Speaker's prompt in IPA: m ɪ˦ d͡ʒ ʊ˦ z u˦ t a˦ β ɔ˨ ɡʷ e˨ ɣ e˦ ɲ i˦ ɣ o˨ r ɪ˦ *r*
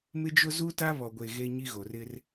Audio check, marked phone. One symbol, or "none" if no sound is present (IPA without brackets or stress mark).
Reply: r